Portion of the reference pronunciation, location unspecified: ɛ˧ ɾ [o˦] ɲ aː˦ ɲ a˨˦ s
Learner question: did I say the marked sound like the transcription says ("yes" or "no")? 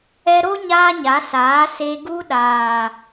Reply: yes